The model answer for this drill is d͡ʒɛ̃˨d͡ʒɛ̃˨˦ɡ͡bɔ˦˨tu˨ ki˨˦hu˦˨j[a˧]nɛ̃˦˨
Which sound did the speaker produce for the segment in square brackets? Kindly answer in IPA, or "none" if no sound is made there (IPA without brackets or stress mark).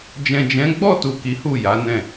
a˨˦